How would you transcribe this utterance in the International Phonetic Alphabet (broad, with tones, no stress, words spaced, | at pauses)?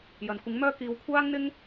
jɐ˨nkʷɪ˨˥ŋmœː˥ kiː˨˧w kʷʰaː˥ŋn̪ɪ˥ŋ